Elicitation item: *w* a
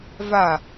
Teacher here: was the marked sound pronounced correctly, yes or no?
no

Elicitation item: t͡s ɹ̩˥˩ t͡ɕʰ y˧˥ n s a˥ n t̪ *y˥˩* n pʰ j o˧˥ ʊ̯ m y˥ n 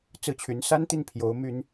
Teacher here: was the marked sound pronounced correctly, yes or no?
no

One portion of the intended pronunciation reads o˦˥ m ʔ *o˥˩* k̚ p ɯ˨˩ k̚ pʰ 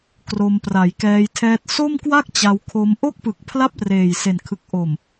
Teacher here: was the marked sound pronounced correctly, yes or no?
yes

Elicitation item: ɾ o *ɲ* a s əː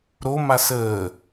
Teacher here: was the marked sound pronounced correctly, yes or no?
no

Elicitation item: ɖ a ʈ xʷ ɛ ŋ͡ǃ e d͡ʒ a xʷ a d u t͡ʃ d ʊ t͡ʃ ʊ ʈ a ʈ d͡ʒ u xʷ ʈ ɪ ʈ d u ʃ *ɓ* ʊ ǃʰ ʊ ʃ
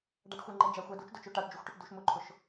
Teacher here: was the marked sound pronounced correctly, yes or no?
no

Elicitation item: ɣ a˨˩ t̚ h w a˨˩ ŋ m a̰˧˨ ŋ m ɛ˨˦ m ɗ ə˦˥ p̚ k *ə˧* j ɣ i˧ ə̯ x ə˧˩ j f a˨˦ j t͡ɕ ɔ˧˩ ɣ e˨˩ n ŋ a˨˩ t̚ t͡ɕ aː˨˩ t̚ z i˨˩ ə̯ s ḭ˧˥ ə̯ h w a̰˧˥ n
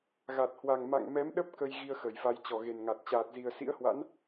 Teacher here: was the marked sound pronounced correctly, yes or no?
yes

